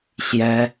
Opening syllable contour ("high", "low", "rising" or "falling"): high